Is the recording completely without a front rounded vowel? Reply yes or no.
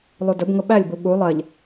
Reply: yes